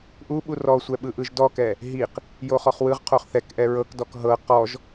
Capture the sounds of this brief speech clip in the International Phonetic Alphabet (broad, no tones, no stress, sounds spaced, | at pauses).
ʔ u ɓ u r ɔ sʷ ɛ ɓ ɯ ʔ ɯ ʒ d ɔ k ɛ | ɦ i q | j o χ ɔ χ w ɯ ʁ qʰ o χ θ ɛ k ʔ ɛ ɹ ɤ k d ɔ k ɦ ɤ q ɔ ʒ